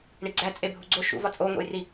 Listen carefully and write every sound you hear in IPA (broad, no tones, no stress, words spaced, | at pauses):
ɳiɡ͡ǀæ t͡sʼebʱuɡ͡ǀo ʃṵvɒ t͡sʼoŋʷḛjri